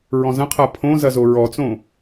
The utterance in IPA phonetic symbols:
ɹɔ̃zɐ̃qʰa pʰõ zɐzoɹɔt͡sõ

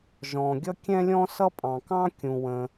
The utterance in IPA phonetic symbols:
ʒɔ̃˩ɡʲʌ˥ kʲɛ̃˥lʲɔ̃˥ sʌ˥pʼɑ̃˩kɑ̃˥ kʲũ˩wə̃˩

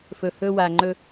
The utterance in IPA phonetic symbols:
fɵ˨hɵ˦wa˨ ŋ͡ǃɵ˦

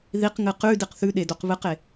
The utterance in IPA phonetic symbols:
ðiqŋɨ qʉ diqθʉɗe doqβɨqe

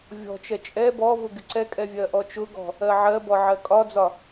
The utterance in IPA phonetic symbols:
vʲɔ̤t͡ʃɛ t͡ʃʼɛ bɔ vʊɡɪǀɛkʼɛ vʲɜʔɔt͡ʃʊɡɔ̤ | ɜʕɜbɔ ʕɜkʼɒd͡zɒ

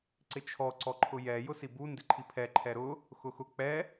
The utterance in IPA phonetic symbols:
ǀɪt͡ʃʰɔ ǀɔǃʰʊjɛ jʊsibu ndɪǃʰipʰɛ ǃʰɛɾʊ | xʊxʊ k͡pɛ

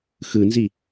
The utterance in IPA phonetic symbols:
xɯnzi

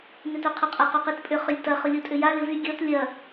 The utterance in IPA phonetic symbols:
nʏtœqʰʊqʼɐ qɔqitpʼʏ χʏlʲtɐ χʊlʲotʼʏja lɪvy ɡʲɔt lʲɐ

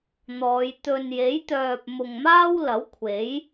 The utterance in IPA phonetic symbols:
n̪ɔː˨˧j t̪ɵ˨nje˨˥jt̪œː˨p̚ mʊ˨ŋmaː˥wlɐ˨˥w kʷʰe˨˥j

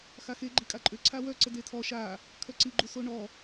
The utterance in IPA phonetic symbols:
xaxe ɡ͡ǃikʼaǃʼø ǀʰawœ ǀədetʰɔ ʃa | kʰœǀi ɡ͡ǃusoɳɔ

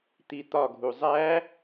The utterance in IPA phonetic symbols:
t̪it̪ɒɡʱu zˤæ

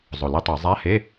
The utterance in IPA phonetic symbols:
zˤo˨˩le˦˨tˤe˧˩˧ zˤa˧˥˧he˧˥˧

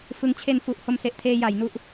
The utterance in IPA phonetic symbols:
fɯ˦˥ŋ t͡ɕʰe˧nfu˨˩ʔ ho˧mse˨˩ʔtʰeː˧ ja˩˦jnu˦˥ʔ

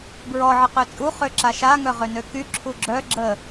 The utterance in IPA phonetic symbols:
bɹɔ ʕəqøt͡sʼu χøǁaʃa ŋœʁønøky ǁʰuɡ͡ǁœ ɡ͡ǁə

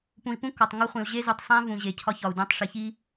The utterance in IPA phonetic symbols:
pũ˨i̯pũ˦kɒ˨tˤ ŋo˦χʷĩ˨u̯ ʑe˦ zu˨tˤsˤæ̃˦vũ˨ ʑe˨cʰɒ˦çɒ˨u̯ dũ˨˦tˤʂi˨çi˦

